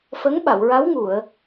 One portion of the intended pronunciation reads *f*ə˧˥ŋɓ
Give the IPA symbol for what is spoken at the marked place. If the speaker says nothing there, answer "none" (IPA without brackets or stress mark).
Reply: f